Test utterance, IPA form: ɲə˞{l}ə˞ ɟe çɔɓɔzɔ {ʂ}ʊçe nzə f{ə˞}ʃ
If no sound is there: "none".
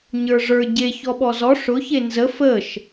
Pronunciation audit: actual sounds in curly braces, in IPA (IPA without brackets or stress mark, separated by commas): ʐ, ʂ, ə